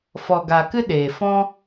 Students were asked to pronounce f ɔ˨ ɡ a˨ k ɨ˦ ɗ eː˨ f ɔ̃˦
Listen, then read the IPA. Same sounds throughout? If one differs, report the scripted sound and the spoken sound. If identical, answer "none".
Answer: none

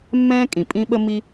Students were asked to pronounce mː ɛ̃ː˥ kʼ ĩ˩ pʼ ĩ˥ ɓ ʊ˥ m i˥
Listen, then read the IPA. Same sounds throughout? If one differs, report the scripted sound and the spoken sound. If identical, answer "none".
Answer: ʊ˥ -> ə˥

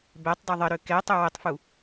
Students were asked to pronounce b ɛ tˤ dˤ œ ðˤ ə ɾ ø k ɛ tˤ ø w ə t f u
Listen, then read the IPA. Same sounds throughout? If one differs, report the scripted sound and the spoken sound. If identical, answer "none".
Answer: t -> tˤ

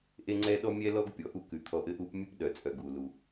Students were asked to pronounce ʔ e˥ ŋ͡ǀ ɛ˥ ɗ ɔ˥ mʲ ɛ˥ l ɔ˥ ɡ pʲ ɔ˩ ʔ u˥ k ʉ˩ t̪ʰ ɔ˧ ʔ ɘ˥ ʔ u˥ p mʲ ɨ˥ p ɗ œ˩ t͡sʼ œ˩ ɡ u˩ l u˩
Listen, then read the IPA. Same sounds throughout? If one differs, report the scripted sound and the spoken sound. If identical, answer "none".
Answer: ɨ˥ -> ʉ˥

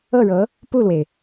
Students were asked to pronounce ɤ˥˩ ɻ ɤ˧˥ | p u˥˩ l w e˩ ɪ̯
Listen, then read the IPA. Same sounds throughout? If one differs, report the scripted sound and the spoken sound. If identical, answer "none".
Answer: none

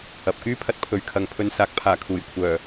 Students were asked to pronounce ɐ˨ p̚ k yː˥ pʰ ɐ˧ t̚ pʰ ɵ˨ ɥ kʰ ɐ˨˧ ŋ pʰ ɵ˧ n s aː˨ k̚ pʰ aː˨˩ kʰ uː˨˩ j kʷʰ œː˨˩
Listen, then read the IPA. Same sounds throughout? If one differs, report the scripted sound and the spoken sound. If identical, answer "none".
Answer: none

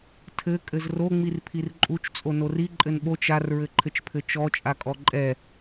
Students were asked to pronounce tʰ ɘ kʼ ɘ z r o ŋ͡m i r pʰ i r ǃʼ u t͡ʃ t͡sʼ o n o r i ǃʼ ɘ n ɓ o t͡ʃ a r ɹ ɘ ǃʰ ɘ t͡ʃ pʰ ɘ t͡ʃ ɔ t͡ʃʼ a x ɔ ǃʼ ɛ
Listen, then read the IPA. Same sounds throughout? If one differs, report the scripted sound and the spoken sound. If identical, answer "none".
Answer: x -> kʼ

